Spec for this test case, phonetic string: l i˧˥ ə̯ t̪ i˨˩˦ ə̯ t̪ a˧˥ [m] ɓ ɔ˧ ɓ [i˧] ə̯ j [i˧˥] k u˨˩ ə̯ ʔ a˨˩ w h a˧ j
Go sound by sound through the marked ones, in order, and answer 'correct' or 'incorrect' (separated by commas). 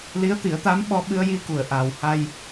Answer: correct, incorrect, incorrect